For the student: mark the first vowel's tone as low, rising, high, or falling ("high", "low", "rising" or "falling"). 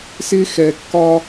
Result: high